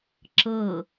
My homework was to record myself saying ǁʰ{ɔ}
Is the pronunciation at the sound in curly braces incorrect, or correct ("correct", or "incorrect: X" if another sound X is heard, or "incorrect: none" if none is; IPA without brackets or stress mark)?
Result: incorrect: ɤ